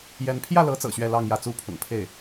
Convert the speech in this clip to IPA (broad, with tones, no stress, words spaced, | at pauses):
jɛ˧˥n pʰjä˥˩lɤ˧˥ t͡sɤ̰˨˩ɕɥɛ˥˧ lɑ˥˧ŋjä˥˩t͡su˥pʰʊ̰˨˩ŋ pʰe˥˩ɪ̯